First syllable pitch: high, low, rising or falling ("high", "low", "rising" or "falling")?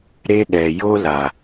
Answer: high